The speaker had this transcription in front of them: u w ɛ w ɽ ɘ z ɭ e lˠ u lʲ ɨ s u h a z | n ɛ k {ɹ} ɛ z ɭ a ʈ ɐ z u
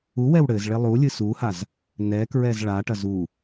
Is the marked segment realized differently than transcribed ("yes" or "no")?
no